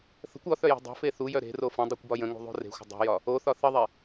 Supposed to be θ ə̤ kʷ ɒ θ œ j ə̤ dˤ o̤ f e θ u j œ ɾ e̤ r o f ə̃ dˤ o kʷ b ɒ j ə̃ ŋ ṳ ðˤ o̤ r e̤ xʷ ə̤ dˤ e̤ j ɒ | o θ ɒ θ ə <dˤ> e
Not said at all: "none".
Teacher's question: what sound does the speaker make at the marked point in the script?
ðˤ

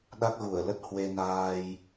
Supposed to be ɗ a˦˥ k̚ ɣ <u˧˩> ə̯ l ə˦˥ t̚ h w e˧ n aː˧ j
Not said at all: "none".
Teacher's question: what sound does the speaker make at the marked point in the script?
u˧˩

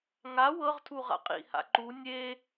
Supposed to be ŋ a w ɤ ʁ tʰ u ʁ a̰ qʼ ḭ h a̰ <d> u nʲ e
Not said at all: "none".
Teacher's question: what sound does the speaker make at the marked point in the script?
ǃ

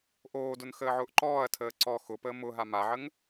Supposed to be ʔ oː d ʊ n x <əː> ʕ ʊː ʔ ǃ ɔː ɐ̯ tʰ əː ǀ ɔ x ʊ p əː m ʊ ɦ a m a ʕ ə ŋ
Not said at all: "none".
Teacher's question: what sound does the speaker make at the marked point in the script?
əː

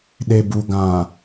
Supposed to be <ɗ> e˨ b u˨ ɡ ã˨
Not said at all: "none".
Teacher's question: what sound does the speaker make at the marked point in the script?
ɗ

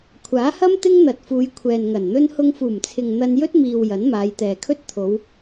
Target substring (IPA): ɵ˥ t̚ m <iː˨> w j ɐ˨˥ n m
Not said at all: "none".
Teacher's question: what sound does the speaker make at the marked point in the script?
iː˨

